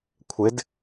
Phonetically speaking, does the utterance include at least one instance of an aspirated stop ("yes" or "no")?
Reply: yes